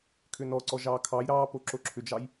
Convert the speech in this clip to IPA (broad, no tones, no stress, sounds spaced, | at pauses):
kʰ ʏ n ɔ ǀ ɔ ʒ ɑː kʰ ɑ j ɾ ɑː p o ǁ o ǁʰ ʏ d͡ʒ ɑ j